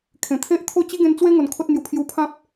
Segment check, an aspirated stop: present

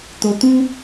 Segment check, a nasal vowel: present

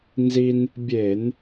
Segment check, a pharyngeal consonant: absent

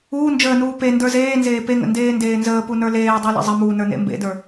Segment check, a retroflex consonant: absent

